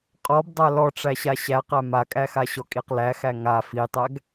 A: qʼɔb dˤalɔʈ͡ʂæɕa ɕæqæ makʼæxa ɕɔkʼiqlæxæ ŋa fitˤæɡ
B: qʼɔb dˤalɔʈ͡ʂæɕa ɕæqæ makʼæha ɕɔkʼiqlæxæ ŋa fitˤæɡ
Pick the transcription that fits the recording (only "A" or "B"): A